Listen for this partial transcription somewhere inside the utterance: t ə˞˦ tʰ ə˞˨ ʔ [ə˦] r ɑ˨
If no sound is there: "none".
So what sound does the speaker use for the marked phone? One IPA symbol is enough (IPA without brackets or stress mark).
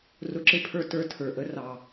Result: ə˦